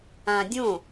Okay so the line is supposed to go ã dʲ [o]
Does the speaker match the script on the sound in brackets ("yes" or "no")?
no